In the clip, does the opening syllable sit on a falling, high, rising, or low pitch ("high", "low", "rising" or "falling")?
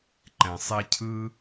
low